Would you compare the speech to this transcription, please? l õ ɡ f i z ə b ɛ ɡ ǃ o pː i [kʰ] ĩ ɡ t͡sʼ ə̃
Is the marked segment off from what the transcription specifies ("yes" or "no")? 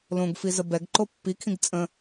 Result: no